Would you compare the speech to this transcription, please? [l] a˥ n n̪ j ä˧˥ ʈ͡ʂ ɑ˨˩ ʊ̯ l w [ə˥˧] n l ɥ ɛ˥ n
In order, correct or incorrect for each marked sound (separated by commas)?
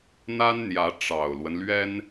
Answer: incorrect, incorrect